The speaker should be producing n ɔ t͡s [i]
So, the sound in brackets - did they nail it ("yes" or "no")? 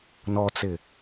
no